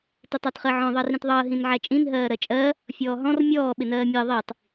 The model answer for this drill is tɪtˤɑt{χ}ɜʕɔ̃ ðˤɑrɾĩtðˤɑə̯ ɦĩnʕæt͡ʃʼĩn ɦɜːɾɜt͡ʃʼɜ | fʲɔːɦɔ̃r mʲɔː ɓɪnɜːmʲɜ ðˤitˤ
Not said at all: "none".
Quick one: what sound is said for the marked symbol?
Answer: χ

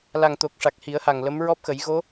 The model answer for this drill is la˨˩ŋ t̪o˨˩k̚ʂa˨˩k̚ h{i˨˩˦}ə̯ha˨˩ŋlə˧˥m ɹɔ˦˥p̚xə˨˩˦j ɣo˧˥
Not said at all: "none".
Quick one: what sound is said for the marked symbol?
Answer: i˨˩˦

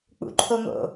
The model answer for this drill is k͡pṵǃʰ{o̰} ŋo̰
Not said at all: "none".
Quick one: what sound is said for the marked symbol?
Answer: o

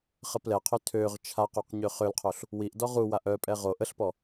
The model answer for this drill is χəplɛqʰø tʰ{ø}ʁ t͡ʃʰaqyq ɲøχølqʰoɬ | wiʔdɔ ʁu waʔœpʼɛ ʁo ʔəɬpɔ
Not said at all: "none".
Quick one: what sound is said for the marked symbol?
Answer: ø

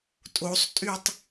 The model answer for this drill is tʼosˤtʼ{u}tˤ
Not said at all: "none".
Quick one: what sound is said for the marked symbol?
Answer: y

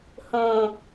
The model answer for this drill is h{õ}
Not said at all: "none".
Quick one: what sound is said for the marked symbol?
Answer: õ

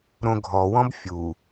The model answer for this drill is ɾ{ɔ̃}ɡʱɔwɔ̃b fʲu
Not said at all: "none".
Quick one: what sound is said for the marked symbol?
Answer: õ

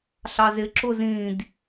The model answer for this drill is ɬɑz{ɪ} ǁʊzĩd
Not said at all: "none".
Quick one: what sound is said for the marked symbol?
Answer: ɪ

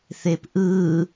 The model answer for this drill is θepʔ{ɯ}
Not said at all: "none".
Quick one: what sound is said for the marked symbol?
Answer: ɯ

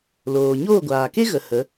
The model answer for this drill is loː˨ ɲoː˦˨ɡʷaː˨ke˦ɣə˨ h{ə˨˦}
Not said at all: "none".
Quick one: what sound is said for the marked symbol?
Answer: ə˨˦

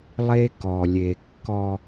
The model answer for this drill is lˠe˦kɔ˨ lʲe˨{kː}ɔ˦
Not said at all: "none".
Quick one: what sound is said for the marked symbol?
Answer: kː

